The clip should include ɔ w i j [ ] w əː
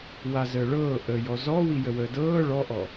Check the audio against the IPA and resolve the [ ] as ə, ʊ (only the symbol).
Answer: ə